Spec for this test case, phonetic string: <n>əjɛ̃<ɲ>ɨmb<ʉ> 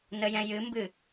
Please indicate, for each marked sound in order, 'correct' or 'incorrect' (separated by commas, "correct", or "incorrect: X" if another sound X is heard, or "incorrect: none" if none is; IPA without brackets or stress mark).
correct, incorrect: j, incorrect: ɨ